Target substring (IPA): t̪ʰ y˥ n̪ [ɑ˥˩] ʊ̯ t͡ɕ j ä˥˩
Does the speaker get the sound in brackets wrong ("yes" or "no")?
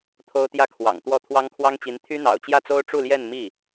yes